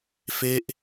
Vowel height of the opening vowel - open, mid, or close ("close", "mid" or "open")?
mid